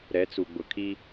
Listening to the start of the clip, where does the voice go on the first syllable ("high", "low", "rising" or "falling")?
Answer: rising